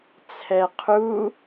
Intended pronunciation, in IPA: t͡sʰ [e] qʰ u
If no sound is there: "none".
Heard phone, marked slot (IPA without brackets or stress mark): ɛ